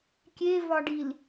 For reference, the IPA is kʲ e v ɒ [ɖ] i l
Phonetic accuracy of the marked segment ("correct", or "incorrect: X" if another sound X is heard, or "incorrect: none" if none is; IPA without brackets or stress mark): correct